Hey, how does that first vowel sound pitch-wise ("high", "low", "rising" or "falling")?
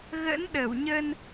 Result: rising